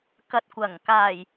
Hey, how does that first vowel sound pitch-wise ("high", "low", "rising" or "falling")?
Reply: low